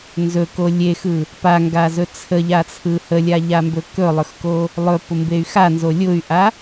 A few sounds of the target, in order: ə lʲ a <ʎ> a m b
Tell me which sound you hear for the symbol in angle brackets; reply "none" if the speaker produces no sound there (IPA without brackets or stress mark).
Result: ʎ